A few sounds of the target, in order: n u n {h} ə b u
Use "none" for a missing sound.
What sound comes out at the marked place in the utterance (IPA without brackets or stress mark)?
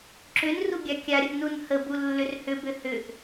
h